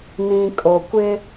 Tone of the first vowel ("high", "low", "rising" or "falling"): low